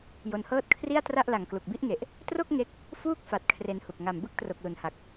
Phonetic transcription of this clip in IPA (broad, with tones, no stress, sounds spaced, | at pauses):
j o˧ n h ɤː˥˩ t̚ kʰ r i˥˩ a̯ t r a˥˩ ʔ l a˨˩ ŋ k l u˨˩ k̚ b i˥˩ ʔ ŋ e˨˩ ʔ | t r o˥˩ k̚ ŋ e˥˩ k̚ | f uː˥˩ k̚ f a˨˩ t̚ kʰ r e˧ n h u˨˩ k̚ ŋ a˨˩ m b ɯ˥˩ k̚ t r o˨˩ k̚ l u˩˦ n h a˨˩ k̚